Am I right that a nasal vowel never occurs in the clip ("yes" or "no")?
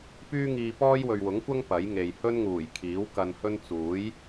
yes